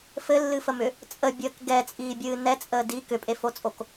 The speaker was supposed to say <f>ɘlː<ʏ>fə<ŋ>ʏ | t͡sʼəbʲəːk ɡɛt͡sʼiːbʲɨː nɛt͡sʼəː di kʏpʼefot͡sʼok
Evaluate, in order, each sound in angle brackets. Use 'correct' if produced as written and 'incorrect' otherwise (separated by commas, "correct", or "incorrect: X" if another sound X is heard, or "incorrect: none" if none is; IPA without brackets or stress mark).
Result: correct, incorrect: ɨ, incorrect: m